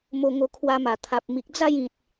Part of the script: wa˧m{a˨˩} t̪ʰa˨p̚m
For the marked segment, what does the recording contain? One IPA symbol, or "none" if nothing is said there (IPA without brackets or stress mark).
a˨˩